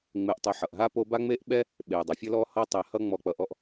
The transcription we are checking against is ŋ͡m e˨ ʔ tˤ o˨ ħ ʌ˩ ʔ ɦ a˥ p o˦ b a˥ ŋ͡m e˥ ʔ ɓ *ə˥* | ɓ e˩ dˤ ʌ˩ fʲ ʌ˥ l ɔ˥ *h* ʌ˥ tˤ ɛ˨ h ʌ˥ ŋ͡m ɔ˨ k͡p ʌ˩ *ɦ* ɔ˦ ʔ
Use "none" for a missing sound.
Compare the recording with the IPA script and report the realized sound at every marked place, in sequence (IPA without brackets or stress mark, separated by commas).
ɛ˥, h, ʔ